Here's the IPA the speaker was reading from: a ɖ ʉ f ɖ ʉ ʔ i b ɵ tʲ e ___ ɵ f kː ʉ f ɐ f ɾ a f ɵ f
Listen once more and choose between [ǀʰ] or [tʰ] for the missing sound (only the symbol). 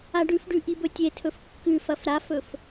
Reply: tʰ